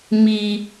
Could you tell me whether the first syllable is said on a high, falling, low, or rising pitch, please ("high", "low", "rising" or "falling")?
high